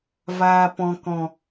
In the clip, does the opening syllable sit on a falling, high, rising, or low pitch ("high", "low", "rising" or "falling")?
low